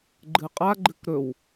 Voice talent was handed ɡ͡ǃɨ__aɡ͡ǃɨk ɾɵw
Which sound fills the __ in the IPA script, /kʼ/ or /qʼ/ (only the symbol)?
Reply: qʼ